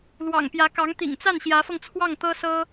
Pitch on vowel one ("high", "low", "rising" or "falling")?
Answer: low